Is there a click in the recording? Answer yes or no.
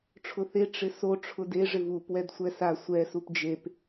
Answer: no